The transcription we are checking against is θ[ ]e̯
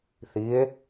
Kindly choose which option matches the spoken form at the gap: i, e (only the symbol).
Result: i